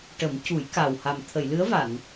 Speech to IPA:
ʈ ə˨˩˦ m c u˨˩˦ j k a˨˩ w h a˨˩ m t̪ʰ ə˨˩˨ j l ɨ˧˥ ə̯ v a˨˩˨ n

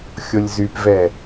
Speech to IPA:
xʲ o lʲ z y p v ɛ

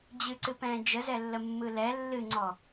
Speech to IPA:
d͡ʑ ɨ ǀ ɨ p ɛ̃ː d͡ʒ ə z ɛ lː ə mː ɯ l ɛ lː ɨ ŋ͡ǀ ɔ

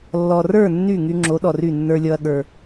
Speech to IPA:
lː ɔ˨ r ə˞˦˨ nː y˦˨ ŋ y˧ ŋ͡ǁ o˨˦ ɗ ɔ˨ r y˦˨ nː ə˞˧ lʲ ɔ˧ ɐ̯ ɠ ə˞˧

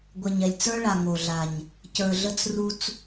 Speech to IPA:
ɡʷ ɛ˨ ɲ ɛ˨ lʲ t͡s ə˞˦ ɭ a˨ ŋ o˨ ɮ a˨ ɲ | c ə˞˨ ɮ ə˦ t͡s r u˦ t͡s

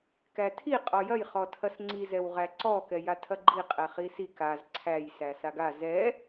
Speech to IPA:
k æ tʰ i qʼ ɔ j ɐ j χ ɔ tʰ ɐ s ŋ͡ǀ i z ɛ w ʁ æ ǀ ɔ k ɛ j a tʰ ɐ ɡ͡ǃ i qʼ ɛ χ i s i k a z ǀʰ æ j s æ s a ɡ a z ɛ

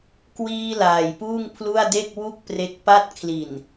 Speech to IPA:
k w iː˧ l aː˨˩ j p uː˥˩ ŋ pʰ l u˥˩ a̯ d e˥˩ k̚ w u˥˩ k̚ p r e˦˥ k̚ p a˥˩ t̚ kʰ l i˨˩ n

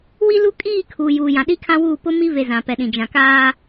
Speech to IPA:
w i˦ l u˦ kʼ iː˦˨ kʰ uː˨ j uː˨ j ã˨ ɗ i˦ kʰ ã˦ w uː˦˨ p ʊ˦ m i˦ v e˨ z ã˨ p ɛ˨ ɗ ĩ˨ d͡ʒ ã˨ k aː˦

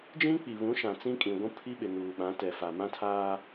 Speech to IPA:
d͡ʒ ĩ˦ k͡p i˨ β ũ˨˦ ʃ ã˨ t͡s ĩ˦ kʼ ĩ˨ ɡʷ ũ˦ pʰ i˦ ɓ ɪ˨ n uː˨ ɓ ã˨˦ t ɛ˨ f a˨ m ã˦ tʰ aː˦

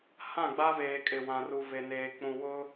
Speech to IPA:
h ã˦˨ ɡ͡b a˦ v eː˨ kʼ ɪ˨ w ã˨ r u˨ v e˨ n eː˨ k͡p ũ˨ w ʊ˦

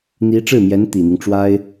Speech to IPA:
n̪ i˧˥ ʈ͡ʂ ɻ̩˥˩ m j ɛ˧˥ n t̪ i˨˩ n̪ i˦ ŋ ʈ͡ʂ w a˥ ɪ̯

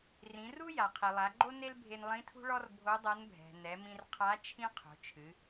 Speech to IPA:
r ĩ˩˧ r u˥ j a˩ qʰ i˩ lˠ a˩˧ ɡ͡ǃ o˥ n e˥ l bʱ e˧ n lˠ ĩ˧˥ tʰ ṳ˥ ɭ ɔ˥ r bʱ o˧˥ dˤ ɐ˧˥ n bʱ ɛ̤˩ n ɛ˩˧ m ĩ˧ r qʰ a˧˥ t͡ʃʰ ĩ˥ qʰ o̤˩˧ t͡ʃʰ ɨ˩˧

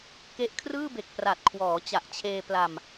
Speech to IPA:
k e˦˥ ʔ kʰ r ɯː˥˩ b e˨˩ k̚ p r a˨˩ t̚ kʰ w ɔː˩˦ t͡ɕ a˨˩ ʔ t͡ɕʰ eː˧ p l a˧ m

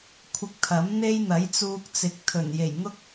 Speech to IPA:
kʷʰ ɪ˧ k̚ t̪ʰ ɐ˨˥ m n̪ e˥ j n̪ ɐ˨˥ j t͡s uː˧ k̚ t͡s ɪ˨˥ k̚ t̪ʰ ɵ˨˩ n j e˨˩ j ŋ ʊ˥ k̚

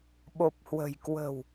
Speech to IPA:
ɓ o˨˩ p̚ h w ə̤˨˩ j k w ə̤˨˩ w

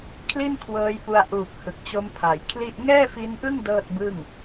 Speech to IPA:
kʰ l i˥˩ n kʰ w ɤː˧ j p u˧ a̯ ʔ uː˨˩ k̚ h ɯ˨˩ k̚ t͡ɕ o˦˥ m pʰ a˩˦ j kʰ l i˥˩ ʔ ŋ ɛː˥˩ f i˦˥ n ʔ ɯ˥˩ ŋ d ɤː˥˩ t̚ b ɯ˥˩ ŋ

